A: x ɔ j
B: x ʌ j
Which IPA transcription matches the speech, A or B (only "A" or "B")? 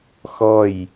A